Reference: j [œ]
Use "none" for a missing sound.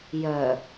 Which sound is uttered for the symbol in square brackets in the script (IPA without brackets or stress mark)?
œ